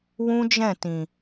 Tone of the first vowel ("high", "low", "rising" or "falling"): high